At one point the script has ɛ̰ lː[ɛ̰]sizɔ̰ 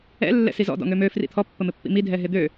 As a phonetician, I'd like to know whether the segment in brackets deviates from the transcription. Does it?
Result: no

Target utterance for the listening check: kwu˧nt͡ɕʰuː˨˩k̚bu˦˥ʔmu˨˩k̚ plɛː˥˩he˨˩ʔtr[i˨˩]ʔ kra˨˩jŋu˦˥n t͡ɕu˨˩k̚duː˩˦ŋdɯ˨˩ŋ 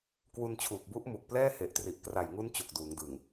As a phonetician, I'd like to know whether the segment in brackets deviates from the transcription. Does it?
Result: no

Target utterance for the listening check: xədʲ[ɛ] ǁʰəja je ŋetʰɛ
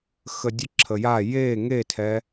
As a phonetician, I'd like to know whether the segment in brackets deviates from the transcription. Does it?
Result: yes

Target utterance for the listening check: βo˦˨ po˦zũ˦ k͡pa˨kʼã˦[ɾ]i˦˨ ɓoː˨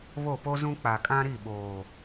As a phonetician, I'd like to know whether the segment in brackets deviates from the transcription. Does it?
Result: no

